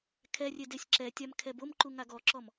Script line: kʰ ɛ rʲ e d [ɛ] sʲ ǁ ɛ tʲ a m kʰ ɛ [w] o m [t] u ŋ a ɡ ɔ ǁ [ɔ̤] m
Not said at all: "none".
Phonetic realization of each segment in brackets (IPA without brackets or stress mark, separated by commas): e, b, ǃ, ɔ